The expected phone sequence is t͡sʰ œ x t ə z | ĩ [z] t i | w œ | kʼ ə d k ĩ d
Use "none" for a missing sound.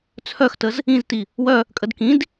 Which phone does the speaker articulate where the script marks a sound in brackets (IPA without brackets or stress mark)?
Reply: z